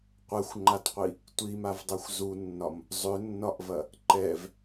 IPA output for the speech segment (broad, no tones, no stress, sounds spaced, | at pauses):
qʷ ɛ xʷ ŋ͡ǃ a t qʷ i | tʷ i m a v dˤ ɛ xʷ z u nː ɒ m | zˤ ʏ nː ɒ ʔ v ɐ | ǃ ɛ v